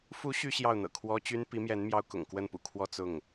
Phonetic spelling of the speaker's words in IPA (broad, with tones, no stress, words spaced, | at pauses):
fu˧˥ ɕy˥ɕjɑ˥˩ʊ̯n̪ɤ̰˨˩kʰwɔ˥ t͡ɕy˥n pi˧˥mjɛ˧˥n mjɑ˥ʊ̯kʊ̰˨˩ŋ kwə˥˩npṵ˨˩kʰwɔ˥˧ t͡sʊ˥˩ŋ